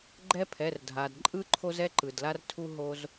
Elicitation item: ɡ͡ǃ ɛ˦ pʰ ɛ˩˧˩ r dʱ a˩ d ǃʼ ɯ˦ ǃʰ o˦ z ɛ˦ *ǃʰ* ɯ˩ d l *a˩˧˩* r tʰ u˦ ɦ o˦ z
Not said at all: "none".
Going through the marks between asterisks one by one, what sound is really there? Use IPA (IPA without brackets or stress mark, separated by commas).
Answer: ǃ, a˦